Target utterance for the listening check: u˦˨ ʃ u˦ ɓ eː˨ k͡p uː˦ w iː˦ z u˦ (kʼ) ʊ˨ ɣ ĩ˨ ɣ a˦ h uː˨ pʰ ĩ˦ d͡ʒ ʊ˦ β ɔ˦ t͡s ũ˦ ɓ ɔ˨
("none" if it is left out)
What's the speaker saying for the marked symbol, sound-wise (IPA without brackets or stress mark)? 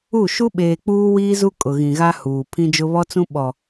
kʼ